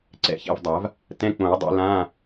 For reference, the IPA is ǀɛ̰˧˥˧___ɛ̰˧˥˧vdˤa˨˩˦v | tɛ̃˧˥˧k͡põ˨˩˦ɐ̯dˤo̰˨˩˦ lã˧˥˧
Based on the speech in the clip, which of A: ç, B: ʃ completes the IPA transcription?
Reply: A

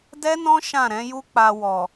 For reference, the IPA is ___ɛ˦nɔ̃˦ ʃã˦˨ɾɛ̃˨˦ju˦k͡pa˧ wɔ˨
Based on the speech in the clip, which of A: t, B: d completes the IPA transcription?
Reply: B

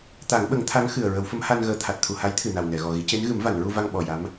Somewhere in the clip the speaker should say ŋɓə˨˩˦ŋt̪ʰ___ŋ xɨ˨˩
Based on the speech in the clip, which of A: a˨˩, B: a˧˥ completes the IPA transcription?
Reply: B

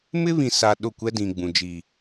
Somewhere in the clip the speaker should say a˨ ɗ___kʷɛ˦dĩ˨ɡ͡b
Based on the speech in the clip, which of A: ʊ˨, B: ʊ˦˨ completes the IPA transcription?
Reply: B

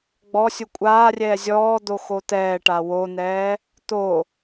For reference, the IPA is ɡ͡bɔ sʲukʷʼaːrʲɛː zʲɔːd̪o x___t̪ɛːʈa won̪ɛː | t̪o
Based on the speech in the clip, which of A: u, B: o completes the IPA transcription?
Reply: B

